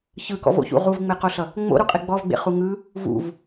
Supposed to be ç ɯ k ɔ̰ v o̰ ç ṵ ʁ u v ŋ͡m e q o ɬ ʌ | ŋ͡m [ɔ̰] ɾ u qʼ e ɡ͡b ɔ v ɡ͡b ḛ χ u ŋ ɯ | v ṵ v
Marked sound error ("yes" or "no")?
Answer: yes